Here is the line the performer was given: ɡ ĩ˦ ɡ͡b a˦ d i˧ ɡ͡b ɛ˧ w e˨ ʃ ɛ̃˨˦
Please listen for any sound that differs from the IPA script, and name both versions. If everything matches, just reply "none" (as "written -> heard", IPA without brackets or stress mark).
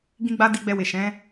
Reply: none